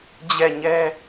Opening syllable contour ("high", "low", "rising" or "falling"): falling